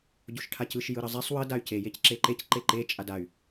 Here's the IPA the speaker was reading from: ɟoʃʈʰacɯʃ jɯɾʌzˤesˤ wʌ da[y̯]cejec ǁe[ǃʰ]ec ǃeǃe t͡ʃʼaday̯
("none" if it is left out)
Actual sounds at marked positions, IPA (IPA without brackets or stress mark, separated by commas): y̯, ǃ